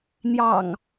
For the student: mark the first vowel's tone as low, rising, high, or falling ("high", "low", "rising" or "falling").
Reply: low